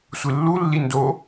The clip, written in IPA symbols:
sʷ ɨ lː u lː i n d o

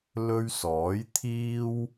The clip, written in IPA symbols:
l ɵ˥ ɥ s ɔː˨˥ j t̪ʰ iː˥ w

